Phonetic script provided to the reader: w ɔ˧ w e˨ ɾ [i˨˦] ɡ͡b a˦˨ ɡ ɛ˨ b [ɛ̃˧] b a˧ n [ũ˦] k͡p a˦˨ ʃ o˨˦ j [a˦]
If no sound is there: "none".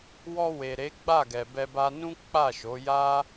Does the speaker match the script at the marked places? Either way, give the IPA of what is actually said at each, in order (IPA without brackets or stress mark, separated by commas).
e˨˦, ɛ˧, ũ˦, a˦